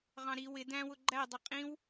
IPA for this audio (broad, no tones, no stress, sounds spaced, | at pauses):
ʁ ɑ̃ ɾ i w ɪ d æ̃ w ʊ ɡ͡ǃ æ dˤ ə qʼ ĩ w